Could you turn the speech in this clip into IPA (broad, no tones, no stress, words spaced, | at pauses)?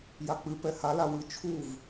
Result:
jak͡pɨ pɛhala wɨ t͡ʃʰuv